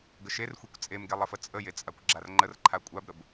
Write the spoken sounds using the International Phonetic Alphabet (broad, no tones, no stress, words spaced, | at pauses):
ɡəʃerxʷekʷ t͡sʼemɡe lˠəfət͡sʼəje t͡sʼakʷɡ͡ǁarŋ͡ǃərǃʰa kʷʼabɾəb